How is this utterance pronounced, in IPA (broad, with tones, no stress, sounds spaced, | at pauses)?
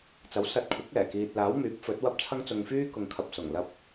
t͡s ɐ˨˥ w s ɐ˧ t̚ kʷʰ ɪ˨˥ k̚ ɛː˨˩ k iː˨ t̚ l aː˨˥ w m yː˨˥ p̚ f ɵ˨˥ t̚ w ɐ˥ p̚ t͡sʰ ɐ˥ ŋ t͡s ʊ˧ ŋ f yː˥ k ʊ˨ ŋ kʰ ɐ˨ p̚ s ʊ˨˩ ŋ l ɐ˧ p̚